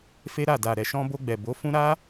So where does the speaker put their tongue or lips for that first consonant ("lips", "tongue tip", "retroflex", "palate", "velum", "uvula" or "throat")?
lips